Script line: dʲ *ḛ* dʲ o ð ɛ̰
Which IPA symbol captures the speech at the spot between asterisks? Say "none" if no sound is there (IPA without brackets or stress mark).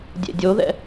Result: ḛ